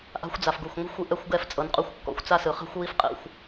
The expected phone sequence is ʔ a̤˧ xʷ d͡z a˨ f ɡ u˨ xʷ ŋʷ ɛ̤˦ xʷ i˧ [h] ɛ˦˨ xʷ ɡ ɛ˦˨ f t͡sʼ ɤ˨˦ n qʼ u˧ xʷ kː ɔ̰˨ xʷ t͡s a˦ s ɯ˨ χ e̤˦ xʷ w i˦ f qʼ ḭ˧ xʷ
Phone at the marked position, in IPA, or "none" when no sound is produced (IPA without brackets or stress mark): ʔ